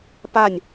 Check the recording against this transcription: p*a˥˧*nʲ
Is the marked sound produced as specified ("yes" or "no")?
yes